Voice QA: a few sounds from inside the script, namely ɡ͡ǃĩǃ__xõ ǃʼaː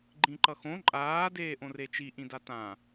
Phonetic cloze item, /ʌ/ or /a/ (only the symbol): ʌ